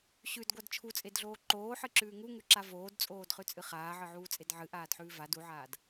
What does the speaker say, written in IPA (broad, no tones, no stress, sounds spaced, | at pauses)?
ɕ ʉ d ɡʷ a d t͡ʃʰ u t͡sʼ e d ɮ oː ǃ oː ħ ɨ ǁ ʉː ŋ u ŋ ʉ ǁ a v oː d t͡sʼ oː d χ ʉ t͡sʼ ɨ χ aː ʕ ɨ ʕ uː t͡sʼ e d ʕ ɨ ʔ aː d ħ ʉː v a d u ʕ aː d